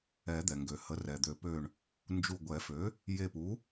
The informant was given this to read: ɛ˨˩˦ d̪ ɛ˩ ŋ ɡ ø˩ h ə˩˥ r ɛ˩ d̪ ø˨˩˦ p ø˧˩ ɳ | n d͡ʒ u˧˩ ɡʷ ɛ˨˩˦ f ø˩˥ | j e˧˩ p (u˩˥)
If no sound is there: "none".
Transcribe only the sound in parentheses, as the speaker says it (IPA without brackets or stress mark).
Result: u˩˥